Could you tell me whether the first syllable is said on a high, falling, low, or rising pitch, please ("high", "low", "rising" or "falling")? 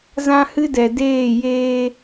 high